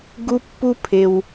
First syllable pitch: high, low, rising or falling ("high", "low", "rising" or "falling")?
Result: high